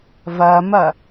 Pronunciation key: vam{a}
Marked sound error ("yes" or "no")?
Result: no